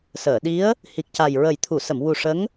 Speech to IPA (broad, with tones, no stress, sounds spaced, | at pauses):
s əː˨˩˨ ɗ i˧˥ ə̯ | h i˨˩ k̚ c a˨˩ j ɹ ə˨˩ j t̪ʰ u˨˩˨ s ə˨˩˨ m w u˨˩ ʂ ə˧˥ ŋ